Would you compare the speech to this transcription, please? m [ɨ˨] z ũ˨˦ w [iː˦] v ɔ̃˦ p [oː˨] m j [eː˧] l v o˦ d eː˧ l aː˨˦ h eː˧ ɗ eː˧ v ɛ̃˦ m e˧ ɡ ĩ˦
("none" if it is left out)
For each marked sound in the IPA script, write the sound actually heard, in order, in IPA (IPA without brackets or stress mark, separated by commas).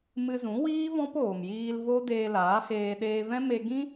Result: ɨ˧, iː˦, oː˨, iː˧